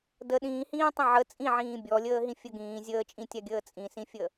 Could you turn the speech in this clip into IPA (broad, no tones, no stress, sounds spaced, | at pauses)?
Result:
d ə ɗ ĩː h ĩː tˤ ə̃ ʕ ə t͡sʼ ĩ ʕ ĩː bʲ ɔ lʲ əː ɦ ĩ fʲ ə ɡ ĩː zʲ əː t͡ʃʼ ĩ tʲ a ɡʲ əː t͡sʼ ĩ s ĩ fʲ ə